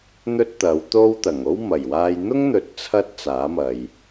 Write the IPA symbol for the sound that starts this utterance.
n̪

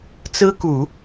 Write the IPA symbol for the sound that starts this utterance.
t͡s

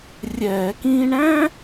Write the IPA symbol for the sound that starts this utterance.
rʲ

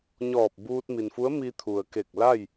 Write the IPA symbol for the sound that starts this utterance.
ɲ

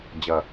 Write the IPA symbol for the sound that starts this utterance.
d͡ʑ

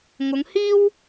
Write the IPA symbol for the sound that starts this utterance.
ŋ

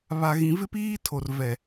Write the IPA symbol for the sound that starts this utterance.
β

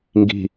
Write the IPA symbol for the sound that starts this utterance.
ŋ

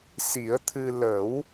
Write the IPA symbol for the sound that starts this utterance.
s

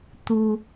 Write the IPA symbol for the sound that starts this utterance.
t̪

